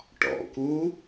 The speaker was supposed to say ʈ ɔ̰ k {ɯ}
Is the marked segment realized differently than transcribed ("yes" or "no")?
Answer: yes